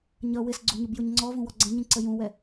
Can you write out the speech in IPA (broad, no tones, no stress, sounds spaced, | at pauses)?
ɲ ʌ w ɪ s ɡ͡ǀ u ɲ ʊ b j ʊ ɲ ŋ͡ǀ ɔ v ũ w ɔ ɡ͡ǀ ɛ̃ ɲ ĩ ǀ ə j ũ w ɛ